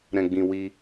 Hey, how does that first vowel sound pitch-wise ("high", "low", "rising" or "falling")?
low